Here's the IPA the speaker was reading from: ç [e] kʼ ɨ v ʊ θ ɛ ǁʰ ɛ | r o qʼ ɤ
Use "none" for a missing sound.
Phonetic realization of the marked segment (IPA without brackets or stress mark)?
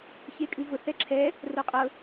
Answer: e